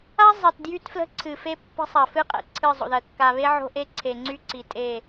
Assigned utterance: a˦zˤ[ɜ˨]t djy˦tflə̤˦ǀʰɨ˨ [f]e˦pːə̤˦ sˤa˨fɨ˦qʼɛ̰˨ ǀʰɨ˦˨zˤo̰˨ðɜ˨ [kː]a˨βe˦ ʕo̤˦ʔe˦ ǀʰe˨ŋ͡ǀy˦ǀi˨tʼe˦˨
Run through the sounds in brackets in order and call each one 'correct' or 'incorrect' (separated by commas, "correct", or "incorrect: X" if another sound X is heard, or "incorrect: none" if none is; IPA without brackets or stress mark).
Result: correct, correct, correct